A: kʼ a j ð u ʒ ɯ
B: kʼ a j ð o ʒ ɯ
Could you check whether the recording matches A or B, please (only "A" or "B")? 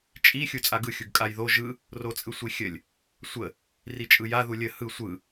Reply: B